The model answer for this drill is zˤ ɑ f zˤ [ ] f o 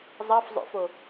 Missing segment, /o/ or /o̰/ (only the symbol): o̰